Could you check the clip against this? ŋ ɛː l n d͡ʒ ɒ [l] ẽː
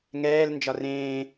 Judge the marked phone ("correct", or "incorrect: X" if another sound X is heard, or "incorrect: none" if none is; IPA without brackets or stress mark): incorrect: r